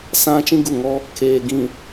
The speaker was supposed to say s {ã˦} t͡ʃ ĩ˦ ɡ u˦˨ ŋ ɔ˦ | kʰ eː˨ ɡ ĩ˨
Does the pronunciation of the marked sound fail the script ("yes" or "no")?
no